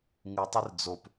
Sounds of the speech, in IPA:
ŋ ɨ tˤ ɨ r d͡z o p

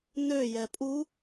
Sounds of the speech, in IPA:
n ø j ɛ pʼ u

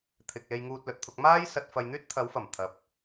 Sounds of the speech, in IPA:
t̪ʰ ɪ˨ k̚ l e˧ j ŋ uː˧ t̚ l ɵ˨ t̚ t̪ʰ ʊ˧ k̚ m aː˥ j s ɐ˧ t̚ f ɐ˧ j n̪ yː˥ t̚ t̪ʰ ɐ˨˧ w f ɐ˨˩ m t̪ʰ ɐ˨ p̚

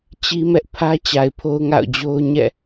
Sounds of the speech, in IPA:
t͡ɕ i˦ m ɛ˦ ʔ pʰ ä˦ t͡ɕ a˨ ɪ̯ pʰ o˦ ʊ̯ ŋ a̰˦˨ ʊ̯ d͡ʑ o˦ ʊ̯ ɲ ɛ̰˦˨

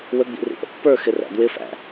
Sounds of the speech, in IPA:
w ə ɡ͡b ḭ r ḭ ʔ ə̰ pː ə˞ x ɪ r æ̰ d w ɪ f æ̰

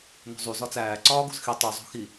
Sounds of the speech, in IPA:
n o̤ zˤ u z ɒ t͡s æː ǀ ɒː ɡ o̤ z x i tˤ u zˤ o̤ x i

